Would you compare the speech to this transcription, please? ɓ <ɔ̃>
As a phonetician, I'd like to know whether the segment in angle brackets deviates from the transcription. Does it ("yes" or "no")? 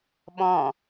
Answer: no